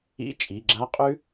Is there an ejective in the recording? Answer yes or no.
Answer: yes